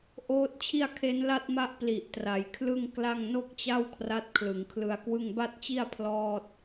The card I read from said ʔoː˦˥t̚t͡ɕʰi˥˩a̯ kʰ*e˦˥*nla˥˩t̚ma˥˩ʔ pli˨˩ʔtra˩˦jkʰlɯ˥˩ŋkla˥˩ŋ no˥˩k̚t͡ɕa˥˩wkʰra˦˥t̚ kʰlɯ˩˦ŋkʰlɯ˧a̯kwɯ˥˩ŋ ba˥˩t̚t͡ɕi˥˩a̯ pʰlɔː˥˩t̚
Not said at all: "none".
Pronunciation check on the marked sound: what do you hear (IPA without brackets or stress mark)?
e˦˥